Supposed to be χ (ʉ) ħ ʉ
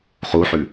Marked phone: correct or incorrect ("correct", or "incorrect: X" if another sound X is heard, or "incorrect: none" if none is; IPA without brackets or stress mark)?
incorrect: u